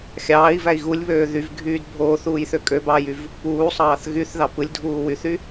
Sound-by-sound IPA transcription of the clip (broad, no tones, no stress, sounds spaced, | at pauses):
xʲ ɑː i̯ v æ i̯ ɣ u lʲ β øː ð y v ɡʱ yː d bʱ oː θ uː j θ ø kʼ ø b ɑː j y v | p uː sˤ ɑː θ ɣ y θ ð ɑ p ɯ lʲ dʱ uː w y θ y